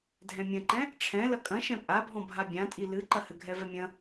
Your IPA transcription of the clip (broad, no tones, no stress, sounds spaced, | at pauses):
dʱ ɛ̃ mʲ ɐ̃ ǃ ɛ̃ | ʈ͡ʂʰ ɛ̃ l ɐ kʼ ɐ̃ ʃ ɛ̃ pʼ a bʱ ɔ̃ bʱ a bʲ ã tʼ i l ɨ ǃ ɐ h ɘ ɡʱ ɛ v ɛ mʲ ɐ̃